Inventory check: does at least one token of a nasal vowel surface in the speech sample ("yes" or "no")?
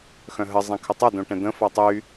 yes